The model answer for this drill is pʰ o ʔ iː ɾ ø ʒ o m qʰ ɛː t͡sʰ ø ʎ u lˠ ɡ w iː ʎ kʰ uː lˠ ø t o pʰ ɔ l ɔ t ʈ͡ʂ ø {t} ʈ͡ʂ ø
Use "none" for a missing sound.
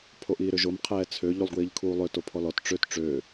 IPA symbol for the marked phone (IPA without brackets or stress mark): t